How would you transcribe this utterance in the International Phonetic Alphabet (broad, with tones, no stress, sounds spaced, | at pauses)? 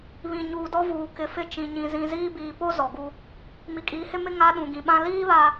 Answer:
β ĩ˨ ɲ uː˨ d ɔ˦ v uː˨ k ɪ˨ f ɪ˦˨ t͡ʃ ĩ˨ ɲ ĩ˨ z ĩ˨ z iː˦ b iː˨ p o˦ z ɔ˨ ɡ u˦ | m i˨ kʼ iː˨˦ h ɪ˦ m ɪ˦ ŋ a˦ ɗ ũ˨ ɡ ĩ˨ ɓ ã˦ l iː˦ β a˨